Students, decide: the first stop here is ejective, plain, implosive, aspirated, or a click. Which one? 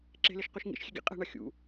click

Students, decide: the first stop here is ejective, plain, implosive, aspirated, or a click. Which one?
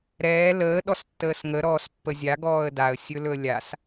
implosive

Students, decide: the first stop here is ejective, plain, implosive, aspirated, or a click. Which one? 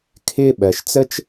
aspirated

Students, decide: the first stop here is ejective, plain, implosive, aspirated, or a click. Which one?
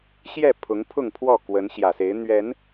aspirated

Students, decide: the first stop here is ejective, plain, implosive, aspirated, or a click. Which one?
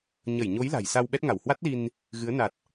implosive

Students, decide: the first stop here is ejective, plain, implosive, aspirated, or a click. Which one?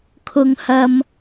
aspirated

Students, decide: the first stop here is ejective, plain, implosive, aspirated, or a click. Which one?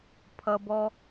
aspirated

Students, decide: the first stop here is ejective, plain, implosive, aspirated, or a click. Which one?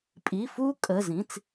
ejective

